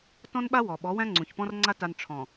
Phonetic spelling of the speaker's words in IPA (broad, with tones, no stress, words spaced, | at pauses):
tɔ̃˦nɓa˦ wɔ˨ɓɔ˨˦ wæ̃˦ŋ͡ǀũ˨çpɔ̃˦rŋ͡ǀa˦ ta˦n ʈ͡ʂʰɔ̃˨